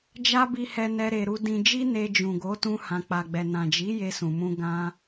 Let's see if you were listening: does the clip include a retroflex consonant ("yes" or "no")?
no